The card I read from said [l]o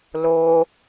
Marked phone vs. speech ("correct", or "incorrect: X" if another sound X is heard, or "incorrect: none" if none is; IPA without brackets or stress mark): correct